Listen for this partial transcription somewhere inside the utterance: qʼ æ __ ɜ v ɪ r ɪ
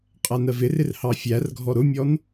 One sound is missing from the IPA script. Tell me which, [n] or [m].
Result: n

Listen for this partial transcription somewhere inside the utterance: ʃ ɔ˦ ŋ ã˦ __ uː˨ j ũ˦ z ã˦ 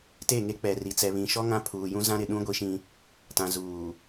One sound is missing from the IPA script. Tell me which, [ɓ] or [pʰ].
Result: pʰ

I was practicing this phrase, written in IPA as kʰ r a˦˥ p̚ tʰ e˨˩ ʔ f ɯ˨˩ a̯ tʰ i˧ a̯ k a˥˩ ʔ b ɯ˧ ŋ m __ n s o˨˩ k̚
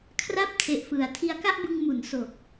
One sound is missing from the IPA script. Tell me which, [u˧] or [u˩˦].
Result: u˩˦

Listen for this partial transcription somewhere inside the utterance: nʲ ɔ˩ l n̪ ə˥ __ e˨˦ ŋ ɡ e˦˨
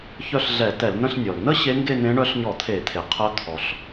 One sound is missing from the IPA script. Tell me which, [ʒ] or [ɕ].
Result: ɕ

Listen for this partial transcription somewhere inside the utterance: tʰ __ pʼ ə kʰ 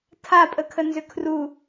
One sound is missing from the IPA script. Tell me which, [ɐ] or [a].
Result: a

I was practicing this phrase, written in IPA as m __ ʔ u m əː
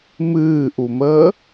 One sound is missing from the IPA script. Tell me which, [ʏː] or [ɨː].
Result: ɨː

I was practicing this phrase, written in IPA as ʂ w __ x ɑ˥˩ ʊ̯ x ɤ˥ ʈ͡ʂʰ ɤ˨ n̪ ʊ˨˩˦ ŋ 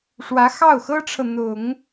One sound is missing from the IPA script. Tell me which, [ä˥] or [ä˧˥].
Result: ä˧˥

